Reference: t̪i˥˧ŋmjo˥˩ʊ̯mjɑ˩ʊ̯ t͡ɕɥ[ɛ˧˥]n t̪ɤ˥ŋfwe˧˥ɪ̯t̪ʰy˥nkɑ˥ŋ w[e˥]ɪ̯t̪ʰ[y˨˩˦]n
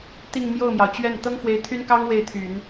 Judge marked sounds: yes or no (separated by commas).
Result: no, no, yes